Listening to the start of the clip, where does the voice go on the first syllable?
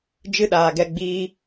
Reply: high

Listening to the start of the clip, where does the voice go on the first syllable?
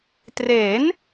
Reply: rising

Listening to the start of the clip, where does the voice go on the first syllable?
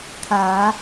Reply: rising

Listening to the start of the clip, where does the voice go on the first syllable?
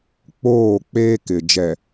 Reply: falling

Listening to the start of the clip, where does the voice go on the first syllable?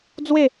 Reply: falling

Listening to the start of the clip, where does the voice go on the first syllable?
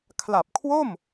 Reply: low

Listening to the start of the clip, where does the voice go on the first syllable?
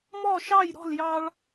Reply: falling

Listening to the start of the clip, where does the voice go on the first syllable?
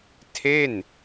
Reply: falling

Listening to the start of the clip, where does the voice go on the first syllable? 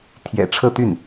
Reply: low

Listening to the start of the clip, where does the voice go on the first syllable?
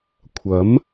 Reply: rising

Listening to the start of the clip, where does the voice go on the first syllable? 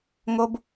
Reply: high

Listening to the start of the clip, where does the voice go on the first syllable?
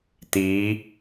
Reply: rising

